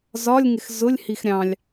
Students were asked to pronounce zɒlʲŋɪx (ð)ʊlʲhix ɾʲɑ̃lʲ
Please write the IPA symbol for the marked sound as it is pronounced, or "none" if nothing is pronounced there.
z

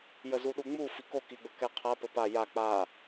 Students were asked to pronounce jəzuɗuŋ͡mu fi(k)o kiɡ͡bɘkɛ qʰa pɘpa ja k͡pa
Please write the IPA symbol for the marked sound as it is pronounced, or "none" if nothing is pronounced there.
k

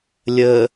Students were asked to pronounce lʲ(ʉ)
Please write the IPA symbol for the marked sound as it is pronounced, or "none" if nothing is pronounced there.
ə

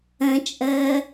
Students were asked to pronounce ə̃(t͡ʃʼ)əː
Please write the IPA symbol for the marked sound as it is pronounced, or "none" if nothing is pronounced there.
t͡ʃʼ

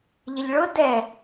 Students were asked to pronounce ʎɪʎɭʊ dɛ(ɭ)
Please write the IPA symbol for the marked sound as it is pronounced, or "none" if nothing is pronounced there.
none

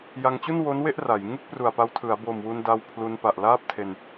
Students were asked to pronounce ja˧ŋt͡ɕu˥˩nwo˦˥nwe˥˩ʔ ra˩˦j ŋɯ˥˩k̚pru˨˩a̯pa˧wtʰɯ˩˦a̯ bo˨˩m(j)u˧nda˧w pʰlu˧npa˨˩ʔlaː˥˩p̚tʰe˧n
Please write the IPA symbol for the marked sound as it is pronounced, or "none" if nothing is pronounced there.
w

